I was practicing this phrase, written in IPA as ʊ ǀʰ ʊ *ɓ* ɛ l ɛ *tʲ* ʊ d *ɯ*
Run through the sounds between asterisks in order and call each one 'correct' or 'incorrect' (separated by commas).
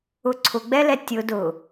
incorrect, correct, incorrect